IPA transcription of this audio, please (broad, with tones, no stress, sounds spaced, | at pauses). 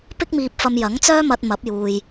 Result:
p ɪ˥ k̚ m iː˧ p̚ f ɐ˧ m j ɐ˨˥ ŋ t͡s œː˥ m ɐ˧ t̚ m ɐ˨˥ p̚ j uː˨ j